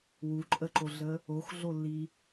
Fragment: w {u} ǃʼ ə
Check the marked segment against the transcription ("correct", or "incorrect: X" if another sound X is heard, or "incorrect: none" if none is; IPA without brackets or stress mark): correct